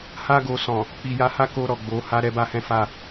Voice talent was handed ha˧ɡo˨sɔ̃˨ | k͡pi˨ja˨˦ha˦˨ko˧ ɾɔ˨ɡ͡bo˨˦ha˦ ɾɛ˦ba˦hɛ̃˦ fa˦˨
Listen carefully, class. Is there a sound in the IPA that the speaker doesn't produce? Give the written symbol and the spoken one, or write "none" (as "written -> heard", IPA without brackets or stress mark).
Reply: none